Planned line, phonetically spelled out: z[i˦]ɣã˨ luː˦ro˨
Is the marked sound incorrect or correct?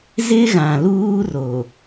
incorrect